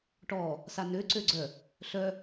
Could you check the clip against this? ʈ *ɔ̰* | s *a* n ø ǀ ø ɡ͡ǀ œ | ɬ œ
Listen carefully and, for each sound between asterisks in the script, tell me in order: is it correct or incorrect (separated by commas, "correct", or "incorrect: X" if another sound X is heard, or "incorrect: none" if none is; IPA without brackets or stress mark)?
incorrect: ɔ, correct